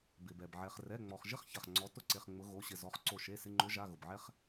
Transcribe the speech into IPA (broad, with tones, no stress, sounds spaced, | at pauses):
b ɪ˩ b ɛ˩ b ʕ ɛ˩ χ r ɛ˩˧˩ ŋ͡m ɔ˩ χ ʒ ɪ˦ χ ç a˩ χ ŋ͡ǀ ɔ˨˦ t ʊ˥˩ ǀ e˩˧˩ χ ŋ͡m ʊ˨˦ ɣ o˩˧˩ ɕ ɪ˧˩ z ɔ˨˦ χ ǀ o˧˩ ʃ e˩˧˩ s ɪ˩˧˩ ŋ͡ǃ ʊ˨˦ ʒ a˩˧˩ ɣ ʊ˩ b ʕ ɛ˦ χ